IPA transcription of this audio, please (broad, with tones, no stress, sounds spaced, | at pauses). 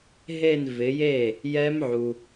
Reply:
ɦ e˥˧ n v ɪ˩˧ j e˥˩ | j ɛ˦˥ m ʕ u˩